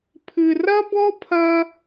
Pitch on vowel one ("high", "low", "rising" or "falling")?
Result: high